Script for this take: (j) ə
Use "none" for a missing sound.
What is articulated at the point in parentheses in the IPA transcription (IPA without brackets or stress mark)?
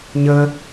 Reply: ɲ